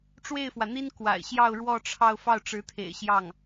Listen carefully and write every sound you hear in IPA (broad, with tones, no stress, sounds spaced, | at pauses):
ʈ͡ʂ w e˥˩ ɪ̯ f w ä˩ n̪ i˥ n k w a̰˨˩ ɪ̯ ɕ j ɑ˥˧ ʊ̯ ɻ w ɔ˥˧ ʈ͡ʂʰ ɑ˥˧ ʊ̯ f ɑ˥˩ ʊ̯ ʈ͡ʂ ɻ̩˧˥ t̪ʰ ḛ˨˩ ɪ̯ ɕ j ɑ˥˩ ŋ